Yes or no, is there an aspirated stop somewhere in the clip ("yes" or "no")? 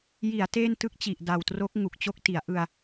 no